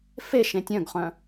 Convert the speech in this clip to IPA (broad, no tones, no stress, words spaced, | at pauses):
fe ʃẽtʲœ̃ɡχœ̃